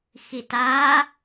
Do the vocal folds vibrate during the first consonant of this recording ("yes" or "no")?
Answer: no